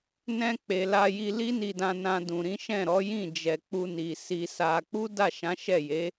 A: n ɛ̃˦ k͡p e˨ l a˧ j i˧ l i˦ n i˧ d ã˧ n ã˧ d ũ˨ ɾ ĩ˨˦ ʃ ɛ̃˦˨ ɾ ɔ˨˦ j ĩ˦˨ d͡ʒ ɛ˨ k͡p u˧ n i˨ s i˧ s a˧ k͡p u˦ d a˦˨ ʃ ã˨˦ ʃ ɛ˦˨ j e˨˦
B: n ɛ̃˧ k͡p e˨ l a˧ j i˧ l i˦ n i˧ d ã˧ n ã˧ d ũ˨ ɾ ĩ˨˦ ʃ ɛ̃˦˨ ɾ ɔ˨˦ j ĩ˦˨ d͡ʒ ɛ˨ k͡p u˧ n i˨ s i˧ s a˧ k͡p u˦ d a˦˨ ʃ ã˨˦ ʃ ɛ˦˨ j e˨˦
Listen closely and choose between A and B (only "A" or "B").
B